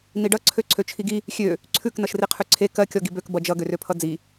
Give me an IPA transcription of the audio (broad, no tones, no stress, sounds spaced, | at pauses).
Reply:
n i ɖ ʌ ǀʰ ø ǀʰ ø t͡ʃʰ i ɡ i | xʲ ø | ǀʰ ʉ k n ʌ ʃ r i qʰ ʉ ǀʰ e k ɜ kʲ ɔ ɡ i b ø k b ʌ d͡ʒ ʌ ɡ ø r ø pʰ ʌ d͡z i